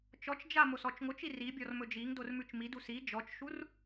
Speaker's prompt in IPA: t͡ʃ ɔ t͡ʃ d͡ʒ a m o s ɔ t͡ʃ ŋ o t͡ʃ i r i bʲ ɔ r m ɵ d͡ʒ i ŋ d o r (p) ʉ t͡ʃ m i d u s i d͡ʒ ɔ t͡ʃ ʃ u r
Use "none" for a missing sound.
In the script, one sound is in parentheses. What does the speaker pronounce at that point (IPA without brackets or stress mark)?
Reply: m